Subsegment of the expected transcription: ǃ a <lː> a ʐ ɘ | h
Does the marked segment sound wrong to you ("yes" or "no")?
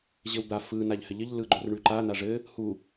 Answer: yes